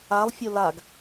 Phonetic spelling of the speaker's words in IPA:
a lˠ fʲ o l a ɡ

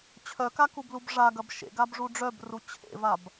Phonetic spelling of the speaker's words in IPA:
t͡ɕʰ œ k a k u b l u b ʐ a ɡ ɐ b ʃ ḛ ɡ a b ʐ u ɖ͡ʐ œ b r u t͡ɕʰ ḛ v a b

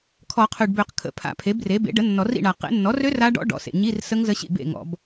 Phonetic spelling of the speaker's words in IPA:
kʰ ɔ˨˩˦ qʰ ø˨ ɖ b ø˨˩˦ q kʰ ə̰˨˩˦ pʰ a̰˨˩˦ pʰ e˩˥ b r e˩˥ b ḛ˩˥ ɖ ə˩˥ nː ɔ˨˩˦ r ḭ˥˩ ɳ a˨ q ḛ˨˩˦ nː ɔ˩˥ r ø˦˥ r a˦˥ ɖ ɔ̰˦˥ ɖ ɔ̰˩˥ s ḛ˨ ɲ i˧˥˧ r s ə˦˥ ŋ z ə˦˥ ɕ ḭ˥˩ b ḛ˥˩ ŋ ɔ̰˨˩˦ b

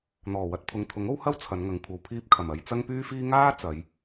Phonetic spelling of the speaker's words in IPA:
n̪ ɔː˨˩ w ɐ˧ t̚ pʰ ʊ˨ ŋ t̪ʰ ʊ˨˥ ŋ o˥ w h ɐ˥ w t͡sʰ ɐ˨˧ n ŋ ɐ˨ ŋ kʷʰ ɐ˨ w pʰ iː˧ p̚ kʰ ɐ˨˩ m ɐ˨˧ j t͡s ɐ˥ ŋ p yː˥ f iː˥ ŋ aː˥ t͡s ɐ˨˧ j

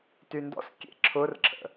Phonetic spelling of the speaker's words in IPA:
t y n d ɔ̰ s kʲ ḛ ǁʰ ʊ r ǁʰ ə̰

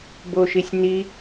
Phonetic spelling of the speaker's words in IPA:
b o ʃ i sʲ n i

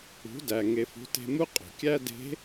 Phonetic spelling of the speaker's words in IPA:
ṳ˩˧ d æ˩ ŋ e˩ f ṳ˩˧ t e̤˧ m u˥ qʼ o̤˩ kʲ æ˥ d e̤˧˥

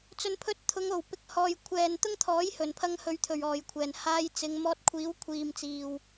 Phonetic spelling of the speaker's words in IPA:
t͡s ɵ˨˧ n pʰ ɵ˧ t̚ t̪ʰ ʊ˨˧ ŋ o˨˩ w p ɪ˨ k̚ h ɔː˨ j kʷʰ ɛː˨ n t̪ ʊ˥ ŋ t̪ʰ ɔː˨˥ j h ɵ˨˩ n pʰ ɐ˧ ŋ h ɵ˨˧ ɥ t̪ʰ ɵ˨˩ ɥ ɔː˨˩ j kʷʰ ɛː˨˩ n h aː˧ j t͡s ɪ˨˧ ŋ m ɔː˧ t̚ kʷʰ iː˨˥ w kʷʰ iː˨ m t͡s iː˨ w

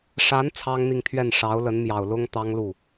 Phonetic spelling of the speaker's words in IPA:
ʂ a˧˥ n t͡sʰ ɑ˥ ŋ n̪ i˥˧ ŋ t̪ʰ ɥ ɛ˥˩ n ʂ ɑ˧˥ ʊ̯ l ə˧˥ n m j ɑ˨˩ ʊ̯ l ʊ˥ ŋ t̪ ɑ˥ ŋ l u˥˩

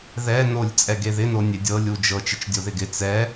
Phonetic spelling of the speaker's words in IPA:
ð ɛ n o lʲ t͡sʼ ɛ ɡ e ð ɪ n o nʲ e dʲ ɤ lʲ u d͡ʒ ɤ t͡ʃ ɪ t͡ʃ dʲ o ð ɪ ɡ ɪ t͡s ɛ

